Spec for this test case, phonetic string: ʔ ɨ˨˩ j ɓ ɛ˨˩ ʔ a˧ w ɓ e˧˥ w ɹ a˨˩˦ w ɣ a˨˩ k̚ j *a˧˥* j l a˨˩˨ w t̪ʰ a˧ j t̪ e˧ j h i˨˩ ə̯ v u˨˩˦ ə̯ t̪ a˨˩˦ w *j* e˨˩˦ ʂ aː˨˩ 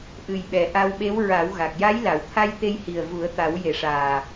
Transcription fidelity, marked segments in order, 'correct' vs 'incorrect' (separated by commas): correct, correct